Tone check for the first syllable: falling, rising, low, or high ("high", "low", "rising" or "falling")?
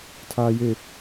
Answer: low